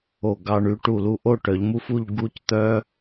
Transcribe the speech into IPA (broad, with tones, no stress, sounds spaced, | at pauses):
o˧˩ ɡ ɑ˧ ɳ y˩˧ ʈ u˧˩ l u˧ ʔ o˥˧ ʈ œ˩˧ ʎ m u˥ f u˥˧ ʎ ɡ u˥˧ c t̪ œ˥